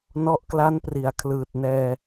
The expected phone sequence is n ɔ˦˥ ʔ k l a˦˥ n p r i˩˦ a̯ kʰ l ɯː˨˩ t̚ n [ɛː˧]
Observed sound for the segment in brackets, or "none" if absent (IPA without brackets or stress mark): ɛː˧